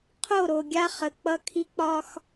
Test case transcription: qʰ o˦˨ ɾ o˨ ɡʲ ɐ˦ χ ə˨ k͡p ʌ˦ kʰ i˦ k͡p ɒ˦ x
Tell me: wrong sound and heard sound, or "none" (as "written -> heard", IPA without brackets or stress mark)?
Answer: ɐ˦ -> a˦